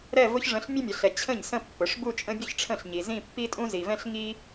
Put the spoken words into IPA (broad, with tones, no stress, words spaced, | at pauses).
ɾɛ˥˧vʊ˥çʐə̃˧˥ɬ mʲə˥mʲə˩˥ɬɛ˨ t͡ɕʰə̃˥˩ɲ sə̃˥˧pːʊ˩˥ʂ bu˥˧t͡ʃʼə̃˥bʲʊ˥çʈ͡ʂʰə̃˥˩ɬ ɲi˨ zĩ˥˧pːi˥tʼũ˥ zi˨vɛ̃˥˧ɬ ŋi˥